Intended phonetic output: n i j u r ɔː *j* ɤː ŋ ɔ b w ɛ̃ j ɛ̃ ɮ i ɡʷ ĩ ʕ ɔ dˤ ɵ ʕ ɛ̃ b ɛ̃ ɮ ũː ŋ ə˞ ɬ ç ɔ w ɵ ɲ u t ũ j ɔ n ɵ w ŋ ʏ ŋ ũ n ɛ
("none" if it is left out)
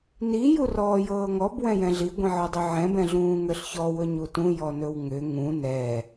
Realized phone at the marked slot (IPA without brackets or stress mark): j